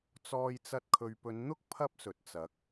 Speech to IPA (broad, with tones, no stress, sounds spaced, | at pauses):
t͡s ɔː˧ j t͡s ɐ˧ t̚ kʰ ɵ˨ ɥ p ɵ˨˧ n n̪ ʊ˥ k̚ pʰ ɐ˥ p̚ s ɵ˨ t̚ t͡s ɐ˨˥ k̚